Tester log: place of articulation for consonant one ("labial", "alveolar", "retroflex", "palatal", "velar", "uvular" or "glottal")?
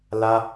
alveolar